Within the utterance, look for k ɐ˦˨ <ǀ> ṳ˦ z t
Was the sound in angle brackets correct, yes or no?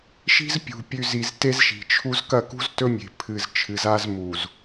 no